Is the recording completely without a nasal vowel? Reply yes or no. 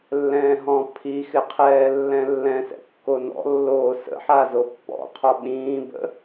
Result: no